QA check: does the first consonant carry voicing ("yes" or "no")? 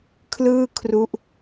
no